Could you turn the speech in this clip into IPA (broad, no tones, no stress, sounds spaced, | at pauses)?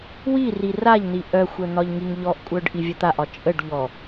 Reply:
w i r i r a ʎ n̪ i ʔ œ xʷ œ n̪ ɒ ʎ ŋ i ŋ ʎ ɔ ʔ kʷʼ œ ɖ ʔ i vʲ ə t̪ a ʔ ɒ t͡ʃʼ ə ɖ ʎ ɔ